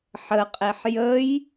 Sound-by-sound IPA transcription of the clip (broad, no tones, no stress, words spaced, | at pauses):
ħəqʼeħ jəj